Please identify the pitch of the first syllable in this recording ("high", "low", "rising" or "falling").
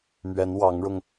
rising